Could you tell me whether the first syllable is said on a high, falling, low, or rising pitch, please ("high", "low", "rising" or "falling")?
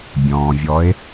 low